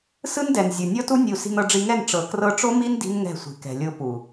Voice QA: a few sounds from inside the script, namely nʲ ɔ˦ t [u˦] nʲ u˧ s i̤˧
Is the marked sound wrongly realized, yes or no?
no